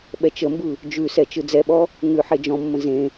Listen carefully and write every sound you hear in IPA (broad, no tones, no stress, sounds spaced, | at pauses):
ɓ ɛ t͡ʃ ə m b ɯ | d͡ʒ ʉ s ɛ t͡ʃ ɯ d͡z ɛ ɓ ɔ | ŋ ʉ ħ e d͡ʒ ɔ̃ mː ə̃ z ẽ